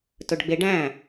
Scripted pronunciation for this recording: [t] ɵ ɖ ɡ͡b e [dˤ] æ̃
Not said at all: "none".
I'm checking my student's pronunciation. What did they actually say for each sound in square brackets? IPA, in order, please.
t, ɖ

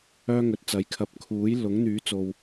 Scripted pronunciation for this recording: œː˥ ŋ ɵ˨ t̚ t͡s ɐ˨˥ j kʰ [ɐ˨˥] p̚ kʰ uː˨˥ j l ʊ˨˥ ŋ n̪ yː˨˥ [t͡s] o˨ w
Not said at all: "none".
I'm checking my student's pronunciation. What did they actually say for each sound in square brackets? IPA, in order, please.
ɐ˨˥, t͡s

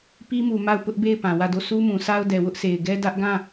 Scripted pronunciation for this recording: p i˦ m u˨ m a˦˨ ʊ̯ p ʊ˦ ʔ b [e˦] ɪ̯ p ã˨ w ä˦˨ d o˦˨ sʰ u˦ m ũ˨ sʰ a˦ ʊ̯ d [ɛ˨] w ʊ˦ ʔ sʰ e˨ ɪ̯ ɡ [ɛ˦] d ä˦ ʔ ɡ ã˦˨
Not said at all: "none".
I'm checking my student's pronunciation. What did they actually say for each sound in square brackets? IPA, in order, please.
e˦˨, ɛ˨, ɛ˦

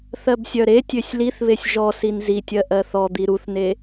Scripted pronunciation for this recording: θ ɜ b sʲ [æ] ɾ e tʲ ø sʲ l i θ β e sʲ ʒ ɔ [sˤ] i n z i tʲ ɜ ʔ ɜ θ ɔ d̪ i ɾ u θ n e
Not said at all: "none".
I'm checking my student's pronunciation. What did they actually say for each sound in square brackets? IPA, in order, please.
œ, s

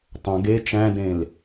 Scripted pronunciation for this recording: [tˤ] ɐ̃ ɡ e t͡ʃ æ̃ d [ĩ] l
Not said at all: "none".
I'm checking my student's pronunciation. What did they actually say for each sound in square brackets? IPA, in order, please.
tˤ, ẽ

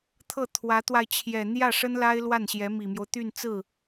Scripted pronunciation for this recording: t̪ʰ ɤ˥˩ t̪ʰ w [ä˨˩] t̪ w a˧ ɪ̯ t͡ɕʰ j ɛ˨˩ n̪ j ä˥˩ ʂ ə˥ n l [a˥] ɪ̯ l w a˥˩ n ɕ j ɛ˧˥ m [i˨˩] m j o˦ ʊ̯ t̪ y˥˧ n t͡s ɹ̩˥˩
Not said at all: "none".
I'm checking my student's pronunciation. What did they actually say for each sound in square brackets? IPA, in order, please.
ä˧˥, a˥, i˨˩

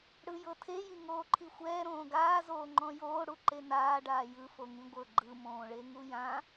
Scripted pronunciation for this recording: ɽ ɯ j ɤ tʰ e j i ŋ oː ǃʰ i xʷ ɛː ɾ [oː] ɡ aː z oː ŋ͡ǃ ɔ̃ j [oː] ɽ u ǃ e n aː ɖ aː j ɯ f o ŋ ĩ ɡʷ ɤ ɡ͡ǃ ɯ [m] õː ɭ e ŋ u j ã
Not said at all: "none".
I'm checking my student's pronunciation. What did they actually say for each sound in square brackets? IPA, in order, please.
õː, oː, m

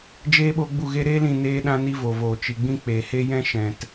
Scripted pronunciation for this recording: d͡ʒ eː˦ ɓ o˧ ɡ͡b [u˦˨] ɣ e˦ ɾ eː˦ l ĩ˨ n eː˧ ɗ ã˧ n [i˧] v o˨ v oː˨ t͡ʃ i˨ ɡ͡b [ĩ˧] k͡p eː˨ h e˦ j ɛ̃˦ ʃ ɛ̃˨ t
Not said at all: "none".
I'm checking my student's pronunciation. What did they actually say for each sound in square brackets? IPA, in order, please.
u˦˨, i˧, ĩ˧

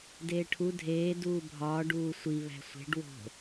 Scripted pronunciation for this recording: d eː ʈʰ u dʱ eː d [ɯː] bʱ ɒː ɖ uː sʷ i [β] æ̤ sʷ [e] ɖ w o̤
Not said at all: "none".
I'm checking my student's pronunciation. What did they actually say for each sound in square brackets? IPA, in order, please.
uː, β, e̤

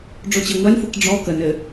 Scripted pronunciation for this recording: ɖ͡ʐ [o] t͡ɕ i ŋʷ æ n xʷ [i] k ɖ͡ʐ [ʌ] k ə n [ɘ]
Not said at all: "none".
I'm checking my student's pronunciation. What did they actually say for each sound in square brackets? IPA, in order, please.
o, i, ɔ, ɘ

